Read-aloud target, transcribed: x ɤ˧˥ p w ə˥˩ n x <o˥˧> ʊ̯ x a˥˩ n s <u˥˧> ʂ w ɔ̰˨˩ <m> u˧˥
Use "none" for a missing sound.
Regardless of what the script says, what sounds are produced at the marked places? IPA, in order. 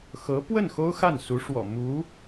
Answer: o˥, u˧˥, m

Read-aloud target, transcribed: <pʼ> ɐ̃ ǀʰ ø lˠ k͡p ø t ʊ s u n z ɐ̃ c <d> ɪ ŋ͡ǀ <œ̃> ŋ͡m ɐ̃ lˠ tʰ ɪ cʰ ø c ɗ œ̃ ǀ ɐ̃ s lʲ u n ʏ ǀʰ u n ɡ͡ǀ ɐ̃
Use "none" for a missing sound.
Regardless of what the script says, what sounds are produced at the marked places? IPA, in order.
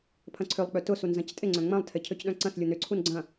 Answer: pʰ, tʼ, œ̃

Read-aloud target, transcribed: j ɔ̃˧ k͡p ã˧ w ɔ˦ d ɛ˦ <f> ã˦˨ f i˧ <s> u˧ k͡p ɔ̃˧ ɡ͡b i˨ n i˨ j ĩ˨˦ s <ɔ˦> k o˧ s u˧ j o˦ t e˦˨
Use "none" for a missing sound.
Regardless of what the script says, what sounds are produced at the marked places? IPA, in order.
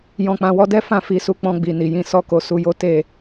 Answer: f, s, ɔ˦

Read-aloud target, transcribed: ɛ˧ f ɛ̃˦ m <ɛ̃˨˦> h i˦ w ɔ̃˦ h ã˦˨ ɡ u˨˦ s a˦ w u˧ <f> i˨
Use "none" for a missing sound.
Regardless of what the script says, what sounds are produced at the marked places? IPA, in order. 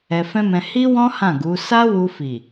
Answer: ɛ̃˧, f

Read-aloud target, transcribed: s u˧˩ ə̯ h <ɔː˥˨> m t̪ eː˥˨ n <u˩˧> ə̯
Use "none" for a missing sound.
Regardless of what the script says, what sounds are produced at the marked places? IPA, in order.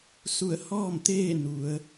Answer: ɔː˥˨, u˩˧

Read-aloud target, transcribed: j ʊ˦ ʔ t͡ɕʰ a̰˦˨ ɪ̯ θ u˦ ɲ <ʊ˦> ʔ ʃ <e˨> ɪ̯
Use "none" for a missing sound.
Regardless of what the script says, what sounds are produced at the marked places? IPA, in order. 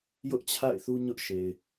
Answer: ʊ˦, e˨

